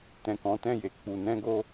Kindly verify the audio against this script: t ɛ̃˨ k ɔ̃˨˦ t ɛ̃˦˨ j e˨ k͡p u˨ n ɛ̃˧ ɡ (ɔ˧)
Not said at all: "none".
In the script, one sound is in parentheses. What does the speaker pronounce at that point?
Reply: o˧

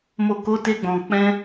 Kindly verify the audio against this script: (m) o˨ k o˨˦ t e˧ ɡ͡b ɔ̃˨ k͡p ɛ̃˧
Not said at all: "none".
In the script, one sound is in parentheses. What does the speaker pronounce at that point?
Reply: m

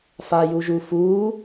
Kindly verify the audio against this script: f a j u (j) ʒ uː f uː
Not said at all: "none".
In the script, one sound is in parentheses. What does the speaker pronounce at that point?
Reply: none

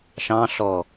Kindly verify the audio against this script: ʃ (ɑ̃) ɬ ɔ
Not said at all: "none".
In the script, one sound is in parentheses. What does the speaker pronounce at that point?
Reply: ɑ̃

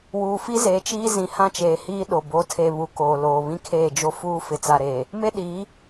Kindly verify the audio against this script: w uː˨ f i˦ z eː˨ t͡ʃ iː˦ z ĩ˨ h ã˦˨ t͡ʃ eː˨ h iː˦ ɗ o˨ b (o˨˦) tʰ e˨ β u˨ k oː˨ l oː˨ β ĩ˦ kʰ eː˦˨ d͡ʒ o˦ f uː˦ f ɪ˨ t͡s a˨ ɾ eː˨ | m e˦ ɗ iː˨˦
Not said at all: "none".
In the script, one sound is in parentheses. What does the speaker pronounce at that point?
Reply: o˨˦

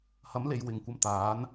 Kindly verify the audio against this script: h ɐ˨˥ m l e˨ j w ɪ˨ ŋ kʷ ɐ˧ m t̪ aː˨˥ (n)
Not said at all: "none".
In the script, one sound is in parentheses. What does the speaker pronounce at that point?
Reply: n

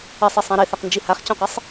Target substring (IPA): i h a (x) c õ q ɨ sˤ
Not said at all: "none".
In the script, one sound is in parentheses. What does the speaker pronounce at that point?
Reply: χ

